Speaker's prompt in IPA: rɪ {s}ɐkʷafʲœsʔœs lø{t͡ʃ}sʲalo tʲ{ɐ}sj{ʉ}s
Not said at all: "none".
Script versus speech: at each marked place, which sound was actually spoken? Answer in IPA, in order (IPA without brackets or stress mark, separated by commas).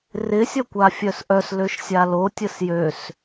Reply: sʲ, ʃ, ə, ø